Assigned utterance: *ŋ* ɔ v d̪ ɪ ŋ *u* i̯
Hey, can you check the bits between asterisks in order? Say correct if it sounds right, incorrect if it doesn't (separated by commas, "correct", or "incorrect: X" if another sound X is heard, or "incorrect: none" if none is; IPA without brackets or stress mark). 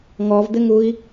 correct, correct